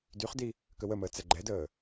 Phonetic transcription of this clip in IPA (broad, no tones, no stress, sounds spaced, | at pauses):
d y χ d i | k ə w ə m əː t͡s ɛ ɡ͡ǃ ɛ d əː